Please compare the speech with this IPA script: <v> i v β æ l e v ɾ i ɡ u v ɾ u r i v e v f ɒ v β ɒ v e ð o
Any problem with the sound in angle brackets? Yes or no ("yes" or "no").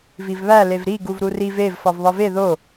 no